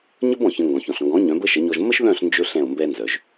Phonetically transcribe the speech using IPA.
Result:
ɲə˥b ɔ̃˩çə̃˧ ŋɡɔ̃˩çɔ̃˩ɬŋɡɔ̃˩˥ ɲœ̃˩˥bə˥ʃə˩˥ɲɔ˧ʒ mə˥ʃðœ̃˥˩ɬnd͡ʒɵ˧ ɬɛ̃˥˩o̯mbɛ˥nzœ˩ʒ

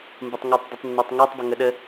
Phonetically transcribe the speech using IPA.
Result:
mbətˤŋɔtˤ dˤɪtˤnːɒtˤŋætˤ bɪŋəɗə

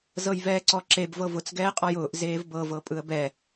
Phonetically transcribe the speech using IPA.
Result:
zɤjvɛːǀɔǁeb vɤvʊt͡s ɡɛːqʼɔjʊːʔ zeːvbɤ vɤpʼɯə̯bɛ

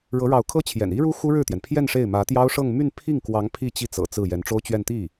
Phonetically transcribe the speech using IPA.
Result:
ɻɤ˧˥ɻɑ˧˥ʊ̯kʰɤ˥t͡ɕʰjɛ̰˨˩n i˥ɻu˥ xu˥ɻɻ̩˥˩t̪jɛ˩n pʰjɛ˥˧n ʂe˥˩ɪ̯ mä˧˥t̪jɑ˥ʊ̯ ʂɤ˥˧ŋ my˥˧npʰi˥˩ŋkwɑ˧˥ŋ pʰi˥˧t͡ɕi˥˩t͡sɤ̰˨˩ t͡sɹ̩˥˩ jɛ˧˥nʈ͡ʂo˥ʊ̯t͡ɕɥɛ˥˧n t̪i˥˩

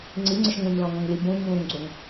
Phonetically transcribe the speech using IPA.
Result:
ŋ͡ǀiŋ͡ǀɪʃ ŋũɲlɔ̃ŋɔ̃ŋli bũɲ ɣũŋɡ͡ǀoŋ

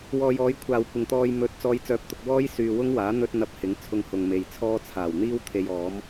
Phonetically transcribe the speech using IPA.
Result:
wɔː˨jɔː˨˥j kʷʰaː˨wkʷɪ˨ŋt̪ɔː˧j mɵ˨˥t̚ t͡sɔː˨˧jt͡sœː˨p̚t̪ʊ˨k̚ wɔː˥jsyː˨wʊ˥ŋwaː˨˥ n̪ɵ˥t̚n̪ɐ˧p̚hɪ˨˥ŋ t͡sʰʊ˧ŋhʊ˨ŋme˨jt͡sʰɔː˥ t͡sʰaː˨˩wn̪iː˥w t̪ʰe˧jɔː˨˥m

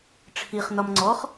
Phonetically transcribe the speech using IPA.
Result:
ʈ͡ʂʰiχnɒm ŋ͡ǀɔχ

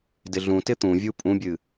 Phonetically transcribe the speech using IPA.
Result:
dɪɮũtɪ t̪ũvʲu pʼũbʲɨ

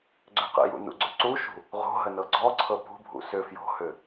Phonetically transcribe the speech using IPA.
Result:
ɡ͡ǀʏqə̰jṵ nṵɡ͡ǀʏǀuʃṳ | ʁo̤ ɦənɤɡ͡ǀɔǀʰɤ pṳbʱṵ sʏ fjo̤hʏ

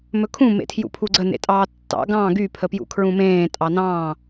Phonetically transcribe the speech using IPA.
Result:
mɵkʰũ mḛtʰjṵpʰuɡ͡ǀə nḛtʼɑːtːɑ̰ ɡɑ̃ ɡy pʰəpjṵkʰɹũmẽː tʼɑnɑ̃ː

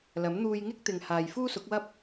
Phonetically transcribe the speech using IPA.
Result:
lɐ˨˥m n̪uː˧jŋɪ˥k̚ t̪ɪ˨ŋhaː˨j fuː˥sʊ˨˥k̚wɐ˥p̚

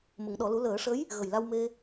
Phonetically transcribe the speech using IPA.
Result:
mə˨˩˦ŋɗɔ˨˩˦lu˧˥ ləː˨˩˦ʂə˧˥j | ɣə˨˩jla˧wme˧

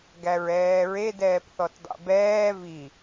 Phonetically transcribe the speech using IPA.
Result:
ɡæɹɛːɹe dɛːpθɔtdˤɛ̰bɛː vi

